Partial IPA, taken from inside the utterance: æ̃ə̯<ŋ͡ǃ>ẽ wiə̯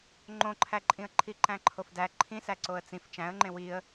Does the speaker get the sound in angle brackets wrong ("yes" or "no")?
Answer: no